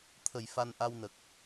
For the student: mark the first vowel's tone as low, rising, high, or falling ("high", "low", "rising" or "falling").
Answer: low